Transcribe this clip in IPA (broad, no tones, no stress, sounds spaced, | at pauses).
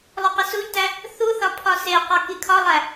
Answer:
lˠ o q e s u ʎ t æ | θ u θ ɒ pʰ ɒ s e q ɒ k i kʰ ɒ lˠ æ